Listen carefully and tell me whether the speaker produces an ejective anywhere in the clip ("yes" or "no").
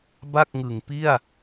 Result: no